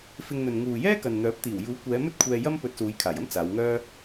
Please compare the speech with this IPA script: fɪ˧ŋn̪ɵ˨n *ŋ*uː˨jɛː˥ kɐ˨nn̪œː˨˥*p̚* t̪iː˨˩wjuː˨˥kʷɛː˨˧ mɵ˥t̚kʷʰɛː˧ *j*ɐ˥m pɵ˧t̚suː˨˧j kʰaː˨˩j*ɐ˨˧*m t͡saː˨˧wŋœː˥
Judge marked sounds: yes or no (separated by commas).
yes, yes, yes, no